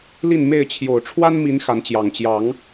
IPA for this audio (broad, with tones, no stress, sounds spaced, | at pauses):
l i˥˨ n m e˥˨ ɪ̯ t͡ɕʰ j o˨˩ ʊ̯ ʈ͡ʂʰ w a˦ n m i˨˦ n x a˨˦ n t͡ɕ j ɑ˨˩ ŋ t͡ɕ j ɑ˨˦ ŋ